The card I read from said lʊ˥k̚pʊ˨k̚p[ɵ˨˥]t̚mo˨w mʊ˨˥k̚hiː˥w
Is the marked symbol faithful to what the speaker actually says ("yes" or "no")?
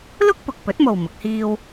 yes